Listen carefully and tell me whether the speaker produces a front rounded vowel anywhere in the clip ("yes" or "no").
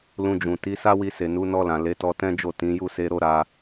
no